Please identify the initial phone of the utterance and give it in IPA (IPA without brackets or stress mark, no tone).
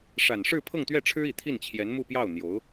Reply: ʂ